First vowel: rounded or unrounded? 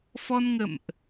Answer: rounded